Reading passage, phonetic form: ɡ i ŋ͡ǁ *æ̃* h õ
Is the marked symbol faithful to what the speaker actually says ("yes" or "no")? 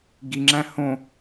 yes